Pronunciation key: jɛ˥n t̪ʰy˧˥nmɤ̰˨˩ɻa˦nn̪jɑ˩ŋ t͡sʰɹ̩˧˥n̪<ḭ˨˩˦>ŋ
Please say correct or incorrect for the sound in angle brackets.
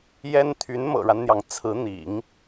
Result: correct